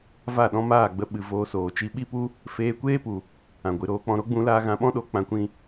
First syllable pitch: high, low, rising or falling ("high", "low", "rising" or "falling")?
falling